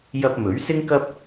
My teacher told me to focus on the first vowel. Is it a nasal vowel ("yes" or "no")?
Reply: no